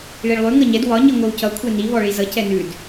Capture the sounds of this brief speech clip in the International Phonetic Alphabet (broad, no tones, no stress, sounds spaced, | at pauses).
ɭ i ɭ lˠ ʉ ŋ ʌ ɲ ɛ d w ɒ ɲ i ŋʷ ʌ w c ʌ kʷʰ ɛ n i β ɔ ɭ i z ʌ c ɛ n ʉ d